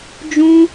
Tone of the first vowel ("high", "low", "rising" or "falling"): high